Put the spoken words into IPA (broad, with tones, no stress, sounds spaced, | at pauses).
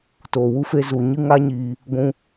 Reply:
t oː˨ w u˧ f e˧ z u˨ ɲ ɨ˦ ŋ a˦ ɲ iː˧ | ɡʷ ũ˧